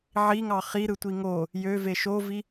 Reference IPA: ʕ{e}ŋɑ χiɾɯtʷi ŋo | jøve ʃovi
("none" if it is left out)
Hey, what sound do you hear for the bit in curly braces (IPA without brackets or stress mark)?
i